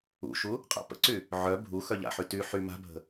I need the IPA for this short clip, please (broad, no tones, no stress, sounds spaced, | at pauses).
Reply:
ṵ ʃ u | qʼ a̰ p ə̰ ǀ y | ʕ œ bʱ u x œ ʎ a̰ ħ y t y ħ y m a̤ bʱ ə̤